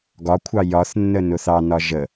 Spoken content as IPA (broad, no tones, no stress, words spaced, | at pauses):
ɡɒkʷʰɑ jɒθnːə nʊθɑnɒ ʒə